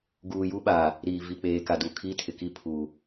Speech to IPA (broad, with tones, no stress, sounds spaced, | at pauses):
ɡ uː˨ j u˦ ɓ aː˨ | ɾ iː˨ v i˨ k͡p eː˨ k a˨ d u˨ kʰ i˦ tʰ ɪ˨ k i˦ pʰ uː˨